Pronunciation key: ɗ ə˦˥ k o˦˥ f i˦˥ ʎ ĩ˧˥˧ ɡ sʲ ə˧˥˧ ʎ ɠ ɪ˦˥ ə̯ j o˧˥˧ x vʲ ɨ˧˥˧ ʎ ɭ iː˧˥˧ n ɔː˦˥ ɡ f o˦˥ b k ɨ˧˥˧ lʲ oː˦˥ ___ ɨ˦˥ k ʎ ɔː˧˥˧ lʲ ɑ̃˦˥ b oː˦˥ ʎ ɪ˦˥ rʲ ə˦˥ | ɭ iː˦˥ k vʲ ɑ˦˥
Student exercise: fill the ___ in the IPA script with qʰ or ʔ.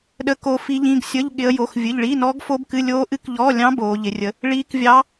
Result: ʔ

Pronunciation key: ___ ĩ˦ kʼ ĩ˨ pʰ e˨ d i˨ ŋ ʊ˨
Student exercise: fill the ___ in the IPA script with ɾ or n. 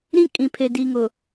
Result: ɾ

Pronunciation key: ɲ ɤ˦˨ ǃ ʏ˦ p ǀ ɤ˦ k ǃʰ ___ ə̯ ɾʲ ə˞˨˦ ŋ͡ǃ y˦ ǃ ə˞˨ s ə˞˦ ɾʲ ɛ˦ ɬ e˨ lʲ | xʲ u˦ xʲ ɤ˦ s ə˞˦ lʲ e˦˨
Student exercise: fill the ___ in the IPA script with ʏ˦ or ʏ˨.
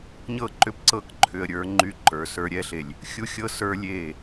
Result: ʏ˨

